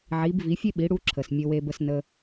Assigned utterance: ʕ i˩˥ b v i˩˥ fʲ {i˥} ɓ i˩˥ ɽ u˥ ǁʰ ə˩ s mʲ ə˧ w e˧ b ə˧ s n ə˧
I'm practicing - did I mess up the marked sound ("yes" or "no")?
yes